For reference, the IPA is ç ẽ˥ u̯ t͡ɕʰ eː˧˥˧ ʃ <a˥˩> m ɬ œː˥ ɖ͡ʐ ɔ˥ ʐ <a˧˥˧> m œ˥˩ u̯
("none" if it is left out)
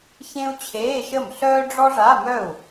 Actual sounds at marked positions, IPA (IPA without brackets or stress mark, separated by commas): ə˥˩, a˧˥˧